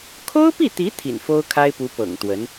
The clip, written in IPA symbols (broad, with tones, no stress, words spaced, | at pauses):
kʰo˥ʊ̯pi˥˩t̪i˧˥ t̪ʰḭ˨˩nfo˥ʊ̯kʰa˥ɪ̯pu˧˥ pɤ̰˨˩ŋt̪wə˧˥n